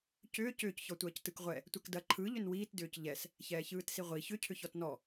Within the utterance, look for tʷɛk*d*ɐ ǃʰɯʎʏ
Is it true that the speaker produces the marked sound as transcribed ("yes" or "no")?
yes